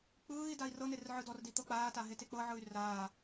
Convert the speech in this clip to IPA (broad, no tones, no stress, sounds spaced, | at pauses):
k͡p ɯː i̯ d a i̯ r ɤ n e r ʕ ɯ d ɔ r d i t̪ ɤ k͡p aː t a ɦ e t e k͡p ɤ ʕ ɯ y̯ r aː